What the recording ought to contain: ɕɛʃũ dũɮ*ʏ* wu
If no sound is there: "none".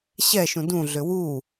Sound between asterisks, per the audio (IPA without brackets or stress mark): ʏ